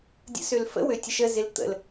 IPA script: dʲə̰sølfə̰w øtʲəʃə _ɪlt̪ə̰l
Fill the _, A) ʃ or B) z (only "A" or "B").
B